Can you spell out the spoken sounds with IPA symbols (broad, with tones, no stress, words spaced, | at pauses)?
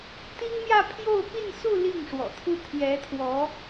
t̪i˥ŋmjä˥˧ pʰjo˥˧ʊ̯pi˥˧nsu˥˧ li˥˩ŋ ʂwɔ̰˨˩t̪ʰu˥˩ t̪ʰjɛ˧˥t̪ʰwɔ˧˥